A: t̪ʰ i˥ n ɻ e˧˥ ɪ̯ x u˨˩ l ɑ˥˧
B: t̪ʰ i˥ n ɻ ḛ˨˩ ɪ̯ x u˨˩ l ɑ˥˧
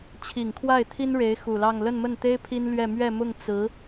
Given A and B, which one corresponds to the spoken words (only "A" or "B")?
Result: A